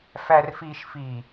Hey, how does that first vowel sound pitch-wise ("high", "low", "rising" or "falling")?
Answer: low